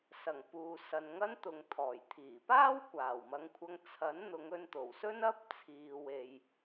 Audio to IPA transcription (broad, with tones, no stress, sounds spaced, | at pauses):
s ɐ˨˩ ŋ p uː˨ s ɐ˨ n ŋ ɐ˥ n t̪ ʊ˨ ŋ t̪ʰ ɔː˨˩ j t̪ʰ iː˨˩ p aː˥ w kʷ aː˨˩ w m ɐ˨˧ ŋ kʷʰ ɐ˧ ŋ t͡sʰ ɐ˨˥ n n̪ ʊ˨˧ ŋ ɵ˧ n t̪ o˨˩ w s ɵ˥ n ɐ˥ p̚ t͡sʰ iː˨ w e˨ j